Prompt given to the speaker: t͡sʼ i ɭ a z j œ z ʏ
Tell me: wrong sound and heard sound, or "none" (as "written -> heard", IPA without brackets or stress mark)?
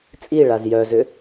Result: none